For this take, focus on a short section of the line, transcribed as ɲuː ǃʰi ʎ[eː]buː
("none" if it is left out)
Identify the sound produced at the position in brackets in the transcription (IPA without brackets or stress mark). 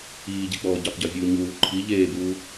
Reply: eː